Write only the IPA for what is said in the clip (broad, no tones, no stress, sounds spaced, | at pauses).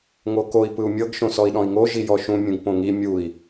ŋ o k o i̯ p ɯ u̯ mʲ ɤ ɡ ʃ õ s ɔ i̯ ɗ ɔ̃ i̯ ŋ o ʒ i j ɔ ʃ ũ mʲ ũ ɡ p õ ŋ i mʲ u i̯